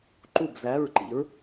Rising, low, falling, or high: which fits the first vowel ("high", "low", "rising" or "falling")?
falling